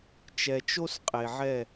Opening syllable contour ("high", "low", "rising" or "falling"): low